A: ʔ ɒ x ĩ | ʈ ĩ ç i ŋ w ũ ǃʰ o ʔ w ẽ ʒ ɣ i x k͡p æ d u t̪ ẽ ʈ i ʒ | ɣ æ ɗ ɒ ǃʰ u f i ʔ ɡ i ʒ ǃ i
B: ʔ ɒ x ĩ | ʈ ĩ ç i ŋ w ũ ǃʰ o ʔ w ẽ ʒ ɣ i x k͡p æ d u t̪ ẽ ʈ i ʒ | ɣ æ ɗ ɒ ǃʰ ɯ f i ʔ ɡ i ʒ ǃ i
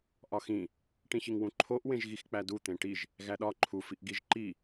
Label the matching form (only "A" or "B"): A